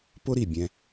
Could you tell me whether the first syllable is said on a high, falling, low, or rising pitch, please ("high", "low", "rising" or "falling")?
high